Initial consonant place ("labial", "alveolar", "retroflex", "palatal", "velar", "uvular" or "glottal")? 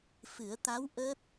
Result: labial